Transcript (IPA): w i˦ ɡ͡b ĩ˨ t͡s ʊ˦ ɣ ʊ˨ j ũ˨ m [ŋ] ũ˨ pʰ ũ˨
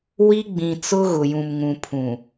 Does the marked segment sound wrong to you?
no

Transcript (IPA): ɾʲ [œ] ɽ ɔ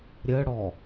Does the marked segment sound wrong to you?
yes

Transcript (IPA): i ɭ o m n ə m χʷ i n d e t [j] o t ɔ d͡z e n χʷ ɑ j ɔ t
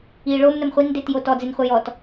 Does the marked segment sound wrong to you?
no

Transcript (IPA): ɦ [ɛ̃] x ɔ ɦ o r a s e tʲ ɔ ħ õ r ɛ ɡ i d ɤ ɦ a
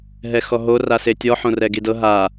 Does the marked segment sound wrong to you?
yes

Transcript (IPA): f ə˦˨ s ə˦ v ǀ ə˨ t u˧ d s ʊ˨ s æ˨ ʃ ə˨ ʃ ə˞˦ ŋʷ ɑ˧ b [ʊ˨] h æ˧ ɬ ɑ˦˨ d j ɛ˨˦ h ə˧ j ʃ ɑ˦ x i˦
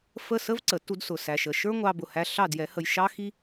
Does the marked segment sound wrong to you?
no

